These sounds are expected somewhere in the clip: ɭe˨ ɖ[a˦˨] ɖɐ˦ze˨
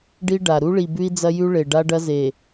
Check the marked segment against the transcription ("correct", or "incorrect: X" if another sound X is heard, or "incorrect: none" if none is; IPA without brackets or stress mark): incorrect: a˦